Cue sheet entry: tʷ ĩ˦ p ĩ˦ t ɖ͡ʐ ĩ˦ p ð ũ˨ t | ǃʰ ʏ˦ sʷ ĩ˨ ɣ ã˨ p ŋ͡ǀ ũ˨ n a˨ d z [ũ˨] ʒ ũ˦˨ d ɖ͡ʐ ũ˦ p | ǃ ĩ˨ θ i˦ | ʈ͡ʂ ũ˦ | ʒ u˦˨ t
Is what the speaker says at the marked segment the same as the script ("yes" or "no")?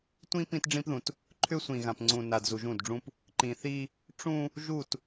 no